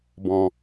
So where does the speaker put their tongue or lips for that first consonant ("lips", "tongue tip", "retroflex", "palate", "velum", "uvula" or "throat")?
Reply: lips